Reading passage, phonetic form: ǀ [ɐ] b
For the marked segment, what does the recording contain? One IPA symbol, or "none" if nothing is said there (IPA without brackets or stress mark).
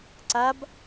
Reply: a